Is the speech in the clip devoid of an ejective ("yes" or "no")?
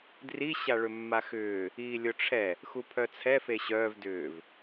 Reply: yes